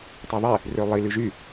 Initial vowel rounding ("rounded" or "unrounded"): rounded